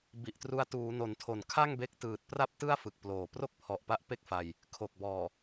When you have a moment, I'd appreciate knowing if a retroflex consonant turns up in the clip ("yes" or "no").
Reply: no